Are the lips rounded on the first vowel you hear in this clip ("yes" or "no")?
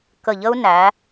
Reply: no